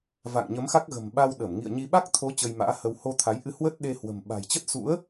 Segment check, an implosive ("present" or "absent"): present